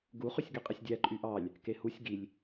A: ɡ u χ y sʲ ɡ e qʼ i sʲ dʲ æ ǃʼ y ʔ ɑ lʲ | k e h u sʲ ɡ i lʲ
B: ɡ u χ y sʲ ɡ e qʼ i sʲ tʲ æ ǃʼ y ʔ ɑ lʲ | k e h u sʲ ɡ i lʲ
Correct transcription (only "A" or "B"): A